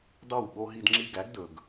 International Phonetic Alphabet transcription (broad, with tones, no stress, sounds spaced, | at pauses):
d ɑ˥˩ w ɓ o˦ ɦ i˦ d ŋ͡ǁ i˦ ɡ æ˨˥ ɡ d ɵ˨ ɡ